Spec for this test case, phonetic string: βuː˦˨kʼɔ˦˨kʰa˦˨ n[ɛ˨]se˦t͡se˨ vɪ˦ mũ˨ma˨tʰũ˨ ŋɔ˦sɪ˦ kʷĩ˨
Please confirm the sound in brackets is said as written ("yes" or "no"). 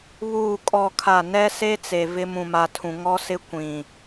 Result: no